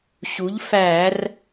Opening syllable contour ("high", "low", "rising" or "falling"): rising